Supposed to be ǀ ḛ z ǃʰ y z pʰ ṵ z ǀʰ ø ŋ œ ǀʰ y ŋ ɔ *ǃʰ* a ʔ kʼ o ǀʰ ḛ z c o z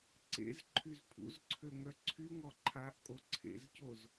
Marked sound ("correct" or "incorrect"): correct